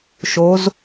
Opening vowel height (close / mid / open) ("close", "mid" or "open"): mid